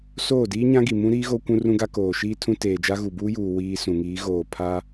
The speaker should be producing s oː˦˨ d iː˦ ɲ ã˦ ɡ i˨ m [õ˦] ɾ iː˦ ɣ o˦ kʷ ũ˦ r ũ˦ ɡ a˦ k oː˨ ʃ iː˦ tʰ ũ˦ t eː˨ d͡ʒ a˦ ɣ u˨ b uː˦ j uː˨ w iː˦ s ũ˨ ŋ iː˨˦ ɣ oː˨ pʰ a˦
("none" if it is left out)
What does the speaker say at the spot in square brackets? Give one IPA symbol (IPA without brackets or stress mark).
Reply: ũ˦